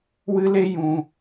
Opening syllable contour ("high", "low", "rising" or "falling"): high